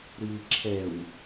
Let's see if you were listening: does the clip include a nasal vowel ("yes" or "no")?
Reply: no